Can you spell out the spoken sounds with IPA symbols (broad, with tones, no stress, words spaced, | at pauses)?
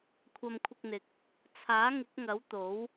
kʷʰɐ˧mkʷʰɪ˧k̚n̪ɪ˨k̚ | t͡sʰaː˨˥ŋɪ˨˥k̚ŋɐ˨˥w t̪o˨˥w